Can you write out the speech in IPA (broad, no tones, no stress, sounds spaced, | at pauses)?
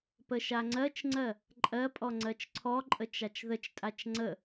p ə ʃ a ŋ͡ǀ ɜ t͡ʃ ŋ͡ǀ ɜ | ǃʼ ɜ pʼ ɔ ŋ͡ǀ ɜ t͡ʃ ǀʰ ɔ ǃʼ ə t͡ʃ a t͡ʃ ð ə t͡ʃ tʼ a t͡ʃ ŋ͡ǀ ə